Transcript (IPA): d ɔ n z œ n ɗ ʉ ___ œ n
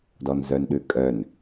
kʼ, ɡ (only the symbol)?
kʼ